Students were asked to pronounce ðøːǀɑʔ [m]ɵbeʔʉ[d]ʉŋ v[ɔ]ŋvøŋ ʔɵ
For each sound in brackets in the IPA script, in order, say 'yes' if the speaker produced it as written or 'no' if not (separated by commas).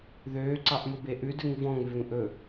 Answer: yes, yes, no